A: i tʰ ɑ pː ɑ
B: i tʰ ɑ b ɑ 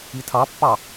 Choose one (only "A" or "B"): A